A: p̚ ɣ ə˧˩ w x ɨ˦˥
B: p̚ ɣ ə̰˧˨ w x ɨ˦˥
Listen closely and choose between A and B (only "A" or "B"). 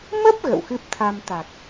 B